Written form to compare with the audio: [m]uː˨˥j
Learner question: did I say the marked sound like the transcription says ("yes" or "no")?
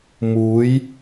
yes